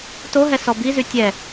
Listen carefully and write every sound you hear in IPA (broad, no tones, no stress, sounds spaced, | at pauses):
t o ɦ ɛ s ɔ b i z y tʲ ɛ